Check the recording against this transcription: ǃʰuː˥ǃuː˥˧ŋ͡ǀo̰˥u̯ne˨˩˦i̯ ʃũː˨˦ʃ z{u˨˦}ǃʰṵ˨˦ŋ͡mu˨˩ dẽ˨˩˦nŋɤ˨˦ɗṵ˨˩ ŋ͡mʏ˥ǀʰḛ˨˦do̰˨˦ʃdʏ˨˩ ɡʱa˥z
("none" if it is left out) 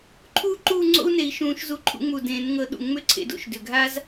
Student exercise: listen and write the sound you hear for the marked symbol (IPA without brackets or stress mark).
u˨˦